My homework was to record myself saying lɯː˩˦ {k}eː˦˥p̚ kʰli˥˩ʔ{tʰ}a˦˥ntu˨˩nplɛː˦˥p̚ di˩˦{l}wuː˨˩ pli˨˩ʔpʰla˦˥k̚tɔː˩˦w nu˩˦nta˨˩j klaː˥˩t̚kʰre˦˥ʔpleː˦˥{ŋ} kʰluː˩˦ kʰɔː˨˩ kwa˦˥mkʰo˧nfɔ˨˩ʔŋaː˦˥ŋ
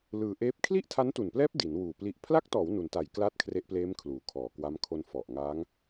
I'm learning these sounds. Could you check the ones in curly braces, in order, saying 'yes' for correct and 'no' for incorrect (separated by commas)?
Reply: no, yes, no, no